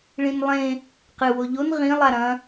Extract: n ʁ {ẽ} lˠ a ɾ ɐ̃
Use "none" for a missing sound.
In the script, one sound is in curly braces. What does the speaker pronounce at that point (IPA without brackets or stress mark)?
ĩ